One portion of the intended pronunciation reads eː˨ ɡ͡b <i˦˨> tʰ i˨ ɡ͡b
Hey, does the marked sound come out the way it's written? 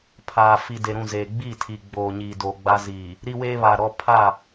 yes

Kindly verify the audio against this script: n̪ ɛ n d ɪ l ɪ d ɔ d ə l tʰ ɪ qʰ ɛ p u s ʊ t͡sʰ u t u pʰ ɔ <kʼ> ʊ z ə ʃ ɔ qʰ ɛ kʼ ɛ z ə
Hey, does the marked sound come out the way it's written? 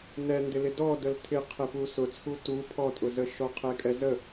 no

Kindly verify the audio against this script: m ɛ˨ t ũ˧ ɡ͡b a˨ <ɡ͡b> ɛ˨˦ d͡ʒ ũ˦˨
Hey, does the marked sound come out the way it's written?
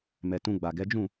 no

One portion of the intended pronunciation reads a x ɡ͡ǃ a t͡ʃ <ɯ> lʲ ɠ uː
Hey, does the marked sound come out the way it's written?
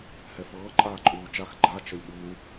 no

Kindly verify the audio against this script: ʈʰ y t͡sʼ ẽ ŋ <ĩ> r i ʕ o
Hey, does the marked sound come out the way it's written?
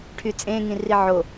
yes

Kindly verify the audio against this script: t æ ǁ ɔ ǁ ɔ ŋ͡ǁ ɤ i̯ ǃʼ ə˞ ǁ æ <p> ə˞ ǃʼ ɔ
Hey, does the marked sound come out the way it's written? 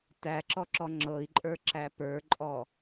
yes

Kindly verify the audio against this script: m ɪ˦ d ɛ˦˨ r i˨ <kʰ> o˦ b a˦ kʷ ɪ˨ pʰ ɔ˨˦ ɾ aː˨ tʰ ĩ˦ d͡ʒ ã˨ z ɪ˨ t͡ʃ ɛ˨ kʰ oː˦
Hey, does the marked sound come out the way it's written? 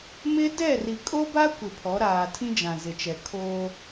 no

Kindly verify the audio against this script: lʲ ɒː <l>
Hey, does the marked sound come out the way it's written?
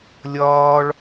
no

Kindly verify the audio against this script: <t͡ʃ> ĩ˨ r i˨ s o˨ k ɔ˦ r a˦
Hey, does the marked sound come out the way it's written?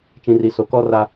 yes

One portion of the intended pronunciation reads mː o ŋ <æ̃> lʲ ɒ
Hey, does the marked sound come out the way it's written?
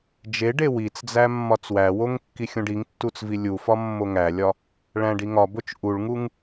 no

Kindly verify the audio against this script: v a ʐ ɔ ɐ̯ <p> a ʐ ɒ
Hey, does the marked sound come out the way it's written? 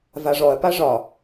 yes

